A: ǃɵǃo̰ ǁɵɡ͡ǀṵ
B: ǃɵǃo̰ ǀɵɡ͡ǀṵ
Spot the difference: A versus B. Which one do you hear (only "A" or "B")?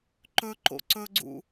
B